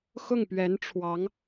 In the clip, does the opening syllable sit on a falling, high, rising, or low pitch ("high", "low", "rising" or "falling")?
falling